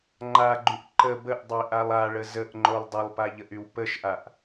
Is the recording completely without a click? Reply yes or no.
no